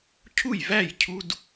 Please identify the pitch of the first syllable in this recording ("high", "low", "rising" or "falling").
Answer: falling